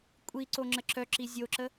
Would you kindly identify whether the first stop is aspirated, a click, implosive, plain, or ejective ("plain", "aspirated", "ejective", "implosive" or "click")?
ejective